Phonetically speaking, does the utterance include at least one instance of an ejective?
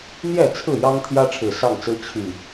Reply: no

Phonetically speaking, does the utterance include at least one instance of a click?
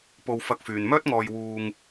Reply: no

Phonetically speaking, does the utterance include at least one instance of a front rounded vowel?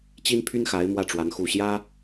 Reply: yes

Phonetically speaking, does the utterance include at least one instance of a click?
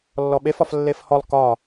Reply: no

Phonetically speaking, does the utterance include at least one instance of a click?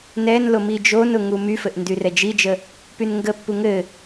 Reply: no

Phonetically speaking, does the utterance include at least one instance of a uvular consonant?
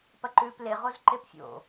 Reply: yes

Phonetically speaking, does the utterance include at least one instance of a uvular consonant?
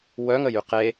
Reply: yes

